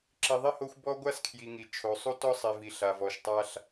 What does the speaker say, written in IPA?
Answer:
ǁ i˨ ðˤ i˦ h o˦ xʷ b ɔ˦ ɡʷ a˦ s kʰ j i˨ ŋ i˨ t͡ʃʰ o˨ sˤ u˦ t ɔ˦ sˤ i˨ v i˨ ɬ a˨ v ɔ˨ ʃ tˤ a˦ ɬ

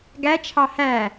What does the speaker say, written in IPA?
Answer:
ɡ æ t͡ʃʰ ɑ h æ

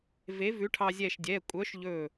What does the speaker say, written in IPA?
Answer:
v e˨˥ v ʉ˨˥ ʈʰ ɑ˧ zʲ ɛ˧˩ ʃ dʲ ɛ˩˧˩ kʷʼ œ˨˥ ʃ ʎ ɵ˧˩

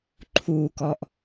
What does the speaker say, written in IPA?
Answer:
ǃʰ u k ɔ ʔ

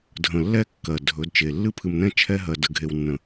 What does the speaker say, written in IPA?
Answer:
dʱ ə̃˨ lː ɛ˦ kː ɜ˨ dʱ ɵ˨˦ d t͡ʃ e˨ lː ɨ˦ pʰ ɨ˨ m n ɛ̃˦ t͡ʃʰ ɛ˦ ɦ ɜ˨ d ə˨ ɡʱ e˨ w nː ə̃˨

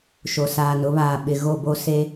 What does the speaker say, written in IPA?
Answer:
ʃ o˨ s aː˨ n ʊ˨˦ β aː˨ ɓ ɪ˨ ɣ o˦˨ b o˦ s e˦

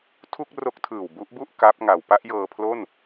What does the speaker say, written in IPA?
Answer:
tʰ u˥˩ k̚ r o˦˥ k̚ tʰ ɯː˨˩ w b u˦˥ ʔ b u˥˩ ʔ k a˦˥ p̚ ŋ a˨˩ w p a˥˩ ʔ j ɤː˧ pʰ l o˥˩ n

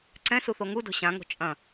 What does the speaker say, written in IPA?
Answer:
ǀ ɛ̃ s u θ o ŋ u d o̤ ɕ ã ŋ o̤ t͡ʃʼ ɐ̃

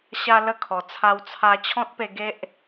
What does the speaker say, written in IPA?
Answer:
ɕ a˦ l ə˥˧ kʰ ɔ˨˩ t͡sʰ a˧ w t͡sʰ a˧ t͡ɕʰ ɔ̃˦ t̚ p e˧ ɡ e˦ ʔ

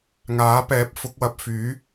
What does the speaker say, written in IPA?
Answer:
ŋ aː˨˥ p ɛː˨˥ p̚ f ʊ˨˥ k̚ w ɐ˧ p̚ f yː˨˥

